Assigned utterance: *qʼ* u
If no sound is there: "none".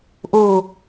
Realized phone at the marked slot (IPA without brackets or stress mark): ʔ